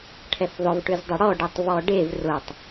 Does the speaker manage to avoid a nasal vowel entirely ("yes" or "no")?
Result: yes